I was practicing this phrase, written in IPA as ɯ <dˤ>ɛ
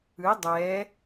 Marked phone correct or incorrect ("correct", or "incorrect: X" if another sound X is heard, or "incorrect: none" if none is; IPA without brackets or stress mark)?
correct